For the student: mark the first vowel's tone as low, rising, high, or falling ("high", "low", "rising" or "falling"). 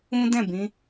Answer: high